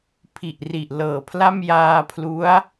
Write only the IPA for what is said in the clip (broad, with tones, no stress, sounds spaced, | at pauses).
pʰ i˨˩ ʔ r i˨˩ ʔ l ɤː˨˩ pʰ l a˥˩ m j aː˧ pʰ l u˦˥ a̯